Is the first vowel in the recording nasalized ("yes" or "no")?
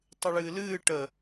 no